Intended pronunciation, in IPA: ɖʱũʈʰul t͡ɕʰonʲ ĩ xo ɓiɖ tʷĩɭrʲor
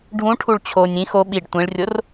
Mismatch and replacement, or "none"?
l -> ɭ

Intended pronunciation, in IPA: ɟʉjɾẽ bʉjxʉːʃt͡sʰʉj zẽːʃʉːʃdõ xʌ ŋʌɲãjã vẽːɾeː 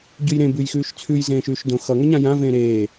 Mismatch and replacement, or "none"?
none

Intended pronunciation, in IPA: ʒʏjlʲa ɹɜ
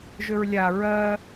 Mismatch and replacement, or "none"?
j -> ɹ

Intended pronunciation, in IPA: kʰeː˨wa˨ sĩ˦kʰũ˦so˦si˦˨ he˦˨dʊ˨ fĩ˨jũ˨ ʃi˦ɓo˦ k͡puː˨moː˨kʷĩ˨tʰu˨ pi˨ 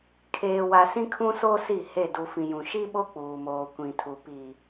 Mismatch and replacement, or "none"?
ʊ˨ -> u˨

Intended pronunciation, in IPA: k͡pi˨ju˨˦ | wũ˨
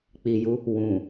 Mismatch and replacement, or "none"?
none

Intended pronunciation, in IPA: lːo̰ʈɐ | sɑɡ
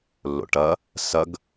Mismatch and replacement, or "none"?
ɑ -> ɐ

